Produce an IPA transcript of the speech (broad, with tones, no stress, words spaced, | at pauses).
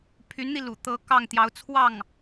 pʰy˧˥nn̪i˧ lṵ˨˩ t̪ɤ˧˥ kɑ˥˩ŋt̪jɑ˧˥ʊ̯ t͡sʰwɑ˥˩ŋ